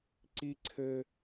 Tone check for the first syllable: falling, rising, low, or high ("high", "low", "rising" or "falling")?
high